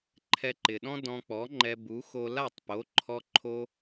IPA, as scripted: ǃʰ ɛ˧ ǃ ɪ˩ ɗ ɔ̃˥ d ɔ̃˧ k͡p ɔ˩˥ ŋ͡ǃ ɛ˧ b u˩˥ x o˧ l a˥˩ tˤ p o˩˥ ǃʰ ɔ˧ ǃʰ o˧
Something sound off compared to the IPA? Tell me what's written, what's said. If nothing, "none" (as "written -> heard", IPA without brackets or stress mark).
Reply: none